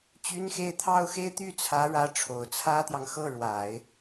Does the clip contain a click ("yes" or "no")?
no